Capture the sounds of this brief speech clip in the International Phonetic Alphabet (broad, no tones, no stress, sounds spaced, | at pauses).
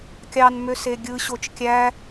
kʲ ɑ n m ø s e ɡʲ ɯ ɕ o t͡ʃ kʲ æ